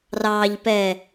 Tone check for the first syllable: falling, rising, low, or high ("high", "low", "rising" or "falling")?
low